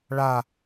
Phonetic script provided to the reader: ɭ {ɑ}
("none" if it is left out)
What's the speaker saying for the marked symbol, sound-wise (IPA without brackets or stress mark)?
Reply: a